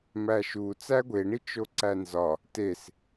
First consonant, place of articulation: labial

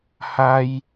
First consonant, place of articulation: glottal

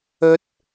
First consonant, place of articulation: alveolar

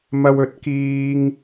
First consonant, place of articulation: labial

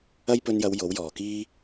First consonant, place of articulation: palatal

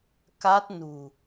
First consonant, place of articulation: velar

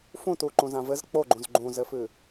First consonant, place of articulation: labial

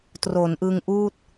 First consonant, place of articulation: alveolar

